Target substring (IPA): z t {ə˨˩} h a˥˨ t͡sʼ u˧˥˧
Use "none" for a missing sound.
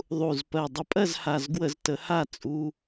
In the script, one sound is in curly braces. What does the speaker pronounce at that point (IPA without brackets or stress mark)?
ə˨˦